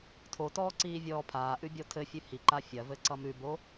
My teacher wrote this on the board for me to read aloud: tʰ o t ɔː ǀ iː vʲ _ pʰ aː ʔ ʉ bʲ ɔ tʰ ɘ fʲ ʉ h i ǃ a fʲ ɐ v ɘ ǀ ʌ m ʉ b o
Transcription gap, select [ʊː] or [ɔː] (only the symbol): ɔː